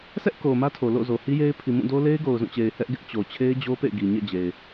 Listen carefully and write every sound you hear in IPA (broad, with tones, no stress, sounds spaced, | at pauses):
s ɛ˦ ʔ k o˨ m ä˦ tʰ o˨ l o̰˦˨ z o˨ h i˦ j e˦ ɪ̯ pʰ i˨ m ũ˦˨ d o˦ l e˦ ɪ̯ ɡ o˨ ʊ̯ z ũ˦˨ t͡ɕ e˨ ɪ̯ h ɛ˦ ʔ ɡ ɪ˦ ʔ t͡ɕ o˨ t͡ɕʰ e˦ ɪ̯ d͡ʑ o˦ p ḛ˦˨ ɪ̯ ɡ i˨ ɲ ɛ̰˦˨ d͡ʑ e˨ ɪ̯